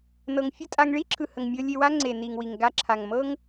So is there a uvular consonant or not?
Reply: no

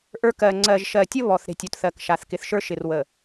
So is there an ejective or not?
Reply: no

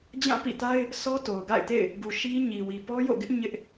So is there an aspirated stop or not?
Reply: no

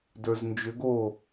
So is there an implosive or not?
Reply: no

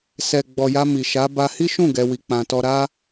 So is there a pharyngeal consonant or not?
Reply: no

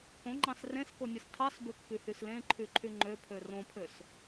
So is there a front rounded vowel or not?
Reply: yes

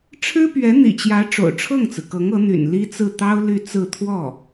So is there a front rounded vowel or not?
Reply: yes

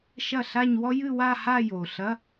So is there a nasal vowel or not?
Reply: no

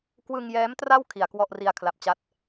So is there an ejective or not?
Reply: no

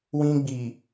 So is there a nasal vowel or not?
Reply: yes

